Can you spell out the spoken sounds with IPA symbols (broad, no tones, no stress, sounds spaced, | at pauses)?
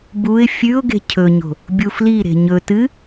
b u ɪ̯ fʲ ʉ ʊ̯ ɡ e̤ cʰ ɵ ɲ o̤ | bʲ u f l i ɾ e̤ ɲ ɵ t ɨ